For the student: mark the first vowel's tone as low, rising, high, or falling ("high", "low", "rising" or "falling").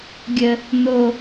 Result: low